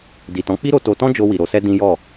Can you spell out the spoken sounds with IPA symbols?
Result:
di˨tɔ̃˨˦k͡pi˦ ɾo˧to˧tɔ̃˦d͡ʒo˧ wi˨ɾo˧sɛ˦ dĩ˦jɔ˦˨

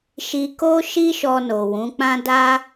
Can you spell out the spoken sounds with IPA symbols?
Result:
ʃi˧ko˦ ʃi˦ʃɔ˧no˨ wũ˨˦k͡pã˦ da˦

